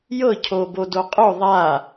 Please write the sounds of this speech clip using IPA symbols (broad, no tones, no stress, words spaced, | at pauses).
jɤcʰobodo qʼo ðˤa